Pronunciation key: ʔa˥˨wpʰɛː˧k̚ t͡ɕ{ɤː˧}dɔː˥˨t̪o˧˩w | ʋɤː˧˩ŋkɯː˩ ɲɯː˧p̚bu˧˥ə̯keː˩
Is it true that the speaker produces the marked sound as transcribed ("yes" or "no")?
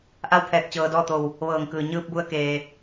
yes